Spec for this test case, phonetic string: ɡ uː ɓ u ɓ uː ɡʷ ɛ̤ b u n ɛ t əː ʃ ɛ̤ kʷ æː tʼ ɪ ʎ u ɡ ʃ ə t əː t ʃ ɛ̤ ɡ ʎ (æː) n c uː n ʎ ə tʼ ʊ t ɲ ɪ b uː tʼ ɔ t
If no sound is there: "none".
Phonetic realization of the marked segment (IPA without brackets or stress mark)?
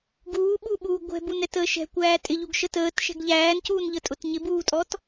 æː